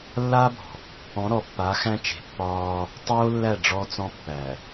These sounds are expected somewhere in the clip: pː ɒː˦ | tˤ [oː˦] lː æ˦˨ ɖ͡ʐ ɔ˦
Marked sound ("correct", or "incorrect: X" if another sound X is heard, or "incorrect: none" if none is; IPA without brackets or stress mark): correct